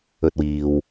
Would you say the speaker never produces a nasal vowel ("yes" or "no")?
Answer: yes